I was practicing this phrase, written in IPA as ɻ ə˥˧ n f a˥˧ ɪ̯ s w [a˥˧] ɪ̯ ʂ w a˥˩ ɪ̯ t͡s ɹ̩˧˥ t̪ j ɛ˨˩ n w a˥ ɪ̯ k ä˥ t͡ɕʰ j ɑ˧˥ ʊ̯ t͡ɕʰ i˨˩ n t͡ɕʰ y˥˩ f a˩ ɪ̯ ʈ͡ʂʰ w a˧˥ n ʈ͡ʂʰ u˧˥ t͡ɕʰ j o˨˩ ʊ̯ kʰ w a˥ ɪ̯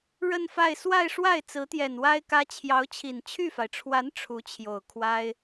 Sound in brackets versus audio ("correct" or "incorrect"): correct